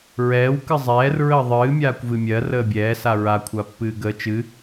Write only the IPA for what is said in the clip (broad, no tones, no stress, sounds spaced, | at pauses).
ɹ ɛː w k ɨ zˤ ɛː r ɹ əː ðˤ ɨː mʲ aː kʷ v ɨ mʲ ɜ r əː bʲ ɛː s a ɹ a kʷʰ a pː ɨː ɡ əː t͡ʃ ɨ